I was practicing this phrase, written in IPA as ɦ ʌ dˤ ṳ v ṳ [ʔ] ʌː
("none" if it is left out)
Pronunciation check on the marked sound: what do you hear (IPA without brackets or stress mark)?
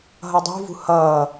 h